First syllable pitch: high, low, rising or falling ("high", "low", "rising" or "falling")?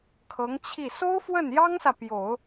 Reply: rising